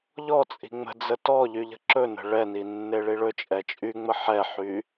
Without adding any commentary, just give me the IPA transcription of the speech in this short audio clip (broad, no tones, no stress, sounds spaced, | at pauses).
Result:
ʎ ɔ t͡sʼ i̤ ŋ͡m ə̤ d͡z ə t ɔ ʎ y ʎ ə̤ ǁ ɵ n ə̤ ɭ ɛ n i nː e ɭ i ɭ ɵ t͡ʃʼ ɛ t͡ʃʼ y ŋ͡m ə ħ ɛ ħ y